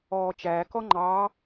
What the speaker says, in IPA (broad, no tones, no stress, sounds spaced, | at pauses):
ɔː t͡ʃ æː k ɔ ŋ͡ǃ ɑː